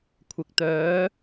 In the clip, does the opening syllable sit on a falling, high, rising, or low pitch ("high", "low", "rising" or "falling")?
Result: low